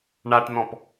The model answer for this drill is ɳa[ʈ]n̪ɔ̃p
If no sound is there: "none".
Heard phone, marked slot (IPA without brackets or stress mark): ʈ